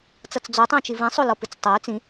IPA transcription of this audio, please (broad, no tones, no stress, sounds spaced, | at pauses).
t͡s ʌ t͡s d͡z o tˤ õ t͡ʃ i v ĩ sˤ o l ɔ p ɨ t͡s tˤ a y̯ t͡s ĩ